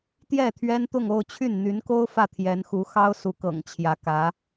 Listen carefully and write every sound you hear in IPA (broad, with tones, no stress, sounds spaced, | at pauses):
t̪ j ɛ˥˩ t̪ʰ ɥ ɛ˥ n t̪ ʊ˥˧ ŋ o˥˧ ʊ̯ t͡ɕʰ y˥˩ n n̪ y˧˥ n k o˥ ʊ̯ f ä˥˩ t̪ʰ j ɛ˧˥ n x u˧˥ x ɑ˥ ʊ̯ s u˧˥ k ɤ̰˨˩ ŋ t͡ɕʰ j ä˧˥ k ä˧˥